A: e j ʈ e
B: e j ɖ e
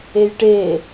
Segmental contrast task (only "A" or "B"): A